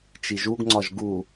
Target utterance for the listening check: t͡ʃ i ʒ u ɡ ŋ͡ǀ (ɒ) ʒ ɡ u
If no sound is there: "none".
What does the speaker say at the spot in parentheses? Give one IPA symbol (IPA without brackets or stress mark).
ɒ